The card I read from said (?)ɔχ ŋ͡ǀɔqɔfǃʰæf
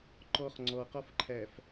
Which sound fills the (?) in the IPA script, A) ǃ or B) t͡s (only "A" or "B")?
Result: A